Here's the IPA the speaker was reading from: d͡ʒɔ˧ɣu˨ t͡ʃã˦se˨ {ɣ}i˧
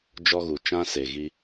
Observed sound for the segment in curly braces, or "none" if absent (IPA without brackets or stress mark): ɣ